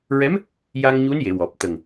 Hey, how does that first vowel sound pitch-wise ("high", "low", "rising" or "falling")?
rising